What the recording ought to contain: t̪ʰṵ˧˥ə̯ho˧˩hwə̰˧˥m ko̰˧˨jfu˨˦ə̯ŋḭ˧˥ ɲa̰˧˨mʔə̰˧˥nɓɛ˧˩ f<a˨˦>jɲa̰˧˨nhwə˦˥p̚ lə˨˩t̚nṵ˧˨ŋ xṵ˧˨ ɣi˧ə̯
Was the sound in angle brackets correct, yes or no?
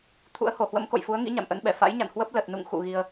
no